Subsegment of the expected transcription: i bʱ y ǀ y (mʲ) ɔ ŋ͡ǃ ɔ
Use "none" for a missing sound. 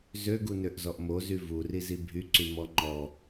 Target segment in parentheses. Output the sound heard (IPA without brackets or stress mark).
m